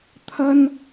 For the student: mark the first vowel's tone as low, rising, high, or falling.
high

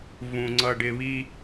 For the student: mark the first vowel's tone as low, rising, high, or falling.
low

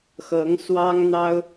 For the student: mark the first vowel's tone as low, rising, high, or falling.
rising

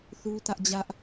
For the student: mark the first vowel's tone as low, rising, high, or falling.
high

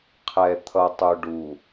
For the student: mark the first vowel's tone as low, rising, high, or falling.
low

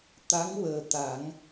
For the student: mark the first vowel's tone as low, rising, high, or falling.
rising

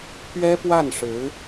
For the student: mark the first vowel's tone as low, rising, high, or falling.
high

